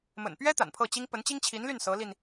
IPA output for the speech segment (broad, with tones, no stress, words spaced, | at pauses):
mə̰˨˩npɥɛ˥ t̪a̰˨˩npʰɤ˥˩t͡ɕi˥ŋ pə˧˥nt͡ɕi˥ŋt͡ɕʰi˧˥nly˥˩n sɤ˧˥li˧n